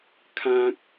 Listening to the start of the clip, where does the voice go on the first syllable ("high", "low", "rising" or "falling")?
high